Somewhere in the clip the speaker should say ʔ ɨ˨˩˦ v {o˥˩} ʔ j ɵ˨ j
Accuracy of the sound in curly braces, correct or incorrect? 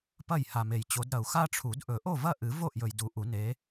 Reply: correct